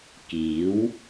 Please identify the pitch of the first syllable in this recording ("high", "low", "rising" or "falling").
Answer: rising